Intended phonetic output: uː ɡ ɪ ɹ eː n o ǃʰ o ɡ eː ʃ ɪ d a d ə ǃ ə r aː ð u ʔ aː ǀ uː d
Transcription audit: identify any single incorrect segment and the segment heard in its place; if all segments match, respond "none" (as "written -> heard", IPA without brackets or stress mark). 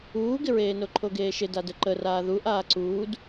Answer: none